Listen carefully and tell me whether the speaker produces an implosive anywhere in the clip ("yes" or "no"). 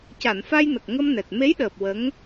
yes